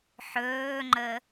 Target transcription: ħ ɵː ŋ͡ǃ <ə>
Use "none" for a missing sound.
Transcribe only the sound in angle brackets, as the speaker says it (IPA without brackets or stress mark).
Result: ə